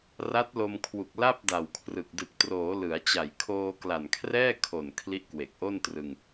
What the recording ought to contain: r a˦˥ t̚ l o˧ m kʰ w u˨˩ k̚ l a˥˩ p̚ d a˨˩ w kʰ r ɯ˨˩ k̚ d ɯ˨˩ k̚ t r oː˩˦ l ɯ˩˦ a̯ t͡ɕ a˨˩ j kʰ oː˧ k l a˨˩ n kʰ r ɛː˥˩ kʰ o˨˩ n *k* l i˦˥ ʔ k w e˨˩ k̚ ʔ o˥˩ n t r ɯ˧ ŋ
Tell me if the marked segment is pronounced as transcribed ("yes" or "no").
no